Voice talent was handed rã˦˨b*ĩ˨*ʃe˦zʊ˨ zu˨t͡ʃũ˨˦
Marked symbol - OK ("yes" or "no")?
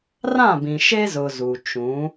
yes